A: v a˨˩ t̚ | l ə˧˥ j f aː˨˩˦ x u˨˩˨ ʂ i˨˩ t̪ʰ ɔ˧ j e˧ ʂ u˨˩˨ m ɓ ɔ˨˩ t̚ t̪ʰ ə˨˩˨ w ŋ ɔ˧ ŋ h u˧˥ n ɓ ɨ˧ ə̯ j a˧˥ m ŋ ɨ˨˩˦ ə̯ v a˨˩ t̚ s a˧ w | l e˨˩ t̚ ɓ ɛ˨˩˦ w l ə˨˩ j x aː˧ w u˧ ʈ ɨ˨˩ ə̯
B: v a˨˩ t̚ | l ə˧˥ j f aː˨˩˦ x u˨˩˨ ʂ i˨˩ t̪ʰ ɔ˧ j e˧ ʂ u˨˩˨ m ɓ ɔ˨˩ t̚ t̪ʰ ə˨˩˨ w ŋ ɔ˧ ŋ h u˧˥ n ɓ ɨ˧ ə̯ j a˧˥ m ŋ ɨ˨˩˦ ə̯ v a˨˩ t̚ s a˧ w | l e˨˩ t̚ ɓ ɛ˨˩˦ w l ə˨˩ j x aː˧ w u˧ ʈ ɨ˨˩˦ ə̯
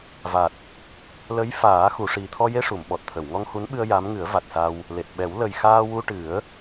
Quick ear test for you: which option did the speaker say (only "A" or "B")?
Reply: B